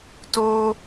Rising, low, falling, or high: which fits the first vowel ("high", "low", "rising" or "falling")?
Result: high